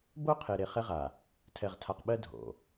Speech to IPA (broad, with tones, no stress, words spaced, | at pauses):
bo˦qʰe˨ɾe˨ χɛ˦ʁa˨ | tʰɛ˨ʁtʰa˨qɓɜ˦ dʱo̰˨